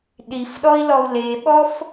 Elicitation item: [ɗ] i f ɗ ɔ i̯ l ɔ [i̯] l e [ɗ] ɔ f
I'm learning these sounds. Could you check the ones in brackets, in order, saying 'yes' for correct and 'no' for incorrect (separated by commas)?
yes, no, no